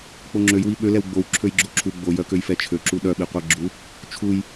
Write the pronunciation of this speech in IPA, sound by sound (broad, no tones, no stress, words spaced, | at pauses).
k͡poŋ͡ǁøjwi ɓø lɛwɡ͡bow ǁʰøjɡ͡ǁoǁʰu ɡ͡bojœkøj fɛt͡ʃʰøǁu ɗœɓiqʷɛ ɡ͡ǁu | t͡ʃʰuj